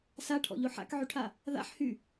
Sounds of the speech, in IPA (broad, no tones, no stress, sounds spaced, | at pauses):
s a ʈʰ ɔ̰ ʎ o ħ a̰ k ʕ y ʈʰ a | ð a̰ ħ h y